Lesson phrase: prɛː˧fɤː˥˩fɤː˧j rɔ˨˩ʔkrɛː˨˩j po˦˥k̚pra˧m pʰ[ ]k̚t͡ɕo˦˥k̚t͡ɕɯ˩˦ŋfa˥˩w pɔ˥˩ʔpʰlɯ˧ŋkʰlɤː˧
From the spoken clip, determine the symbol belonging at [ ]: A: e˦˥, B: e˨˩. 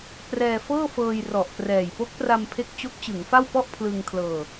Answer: A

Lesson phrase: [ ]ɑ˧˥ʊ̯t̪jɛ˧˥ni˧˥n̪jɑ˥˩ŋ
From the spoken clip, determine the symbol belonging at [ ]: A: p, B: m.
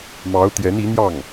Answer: B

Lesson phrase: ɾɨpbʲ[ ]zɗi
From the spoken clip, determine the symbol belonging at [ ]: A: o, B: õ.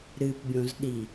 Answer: B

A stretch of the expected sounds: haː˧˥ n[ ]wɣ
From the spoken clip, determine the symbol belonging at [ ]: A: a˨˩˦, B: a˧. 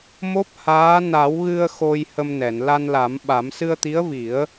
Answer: A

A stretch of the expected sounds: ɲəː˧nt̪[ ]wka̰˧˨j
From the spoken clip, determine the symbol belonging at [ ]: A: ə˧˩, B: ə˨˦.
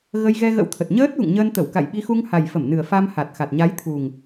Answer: A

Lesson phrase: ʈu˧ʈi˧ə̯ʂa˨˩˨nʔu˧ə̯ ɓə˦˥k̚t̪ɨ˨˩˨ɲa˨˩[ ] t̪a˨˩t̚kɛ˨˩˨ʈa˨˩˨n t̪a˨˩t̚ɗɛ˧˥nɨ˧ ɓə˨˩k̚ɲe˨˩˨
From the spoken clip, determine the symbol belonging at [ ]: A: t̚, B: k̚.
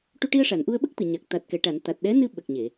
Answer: B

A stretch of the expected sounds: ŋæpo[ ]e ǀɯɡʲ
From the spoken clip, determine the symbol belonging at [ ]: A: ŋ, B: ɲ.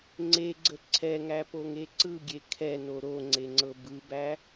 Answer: A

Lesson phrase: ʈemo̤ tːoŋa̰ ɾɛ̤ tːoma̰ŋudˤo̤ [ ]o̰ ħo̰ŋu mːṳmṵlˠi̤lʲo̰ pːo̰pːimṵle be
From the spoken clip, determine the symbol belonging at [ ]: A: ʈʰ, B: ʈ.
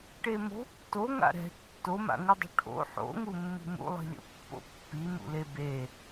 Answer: A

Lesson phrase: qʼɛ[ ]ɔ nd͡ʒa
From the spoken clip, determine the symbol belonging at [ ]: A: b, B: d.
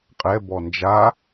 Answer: A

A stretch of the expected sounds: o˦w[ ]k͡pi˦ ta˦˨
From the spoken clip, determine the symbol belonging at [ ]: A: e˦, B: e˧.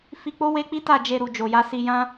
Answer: A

